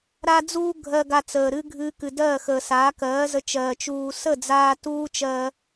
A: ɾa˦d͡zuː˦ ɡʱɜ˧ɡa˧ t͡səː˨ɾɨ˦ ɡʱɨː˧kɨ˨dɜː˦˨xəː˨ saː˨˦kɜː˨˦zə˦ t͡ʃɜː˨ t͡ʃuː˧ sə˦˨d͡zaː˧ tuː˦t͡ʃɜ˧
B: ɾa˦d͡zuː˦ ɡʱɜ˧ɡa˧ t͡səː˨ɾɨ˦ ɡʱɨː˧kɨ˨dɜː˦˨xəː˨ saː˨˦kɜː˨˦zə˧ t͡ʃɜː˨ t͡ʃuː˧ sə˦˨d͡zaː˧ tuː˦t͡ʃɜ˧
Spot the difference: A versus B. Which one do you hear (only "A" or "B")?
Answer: B